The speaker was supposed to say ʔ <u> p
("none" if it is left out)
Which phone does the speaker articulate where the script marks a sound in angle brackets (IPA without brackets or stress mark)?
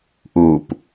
u